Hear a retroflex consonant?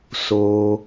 no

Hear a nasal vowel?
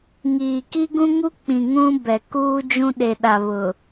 yes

